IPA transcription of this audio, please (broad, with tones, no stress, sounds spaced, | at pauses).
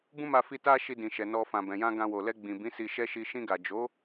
b ũ˦ m a˧ f i˧ t a˦ ʃ i˧ d ĩ˨ ʃ ɛ˨ n ɔ˧ f ã˨ b ɛ̃˨ j ã˧ ɡ ã˧ w o˨ l ɛ˧ ɡ͡b ĩ˨ b ĩ˨˦ s i˧ ʃ ɛ˦ ʃ i˧ ʃ ĩ˧ ɡ a˨ d͡ʒ o˨˦